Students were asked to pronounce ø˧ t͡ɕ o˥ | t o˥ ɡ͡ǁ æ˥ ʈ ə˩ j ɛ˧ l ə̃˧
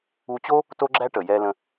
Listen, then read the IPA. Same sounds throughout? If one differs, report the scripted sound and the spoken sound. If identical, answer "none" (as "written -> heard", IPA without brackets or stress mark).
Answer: ø˧ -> u˧